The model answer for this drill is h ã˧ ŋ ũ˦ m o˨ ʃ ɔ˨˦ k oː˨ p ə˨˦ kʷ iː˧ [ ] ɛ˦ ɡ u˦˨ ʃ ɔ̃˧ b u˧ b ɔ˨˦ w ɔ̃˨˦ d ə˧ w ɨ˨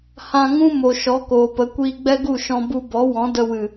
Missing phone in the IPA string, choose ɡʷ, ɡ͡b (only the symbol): ɡ͡b